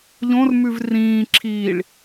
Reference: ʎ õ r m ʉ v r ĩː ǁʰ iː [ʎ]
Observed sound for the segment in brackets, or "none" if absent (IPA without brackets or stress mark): ɭ